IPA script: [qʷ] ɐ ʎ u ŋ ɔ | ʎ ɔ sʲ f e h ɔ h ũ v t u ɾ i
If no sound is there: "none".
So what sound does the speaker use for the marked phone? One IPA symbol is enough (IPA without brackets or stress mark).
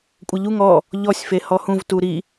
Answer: kʷʼ